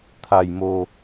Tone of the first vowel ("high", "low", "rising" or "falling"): low